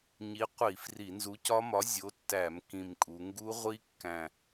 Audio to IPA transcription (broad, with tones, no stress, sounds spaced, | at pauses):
ɲ i˨˥ qʷ i˧˩˧ f r i˧˩˧ n z u˨˥ c ɒ˦˥ m ɒ˨˥ zʲ o˨˥ tː æ˧˩˧ m k ĩ˨˩ m kʼ u˩˧ ŋ ɡ u˦˥ ʁʷ i˦˥ kː æ̃˨˩